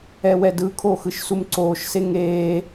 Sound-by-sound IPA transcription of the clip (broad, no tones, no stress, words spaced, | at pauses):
ɛwɛdɯkʰo xɯʃsumǀoːʃse ŋeː